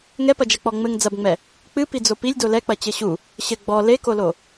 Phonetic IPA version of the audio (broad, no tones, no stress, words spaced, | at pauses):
ŋɛpɐd͡ʒɐk͡pɔ ŋ͡mɘŋ d͡zɐbŋ͡mɛ | k͡pɨ pid͡zopilʲ dolɛk͡pɐ t͡ɕɘɕu | ɕɘ ɡ͡bɔ lekolo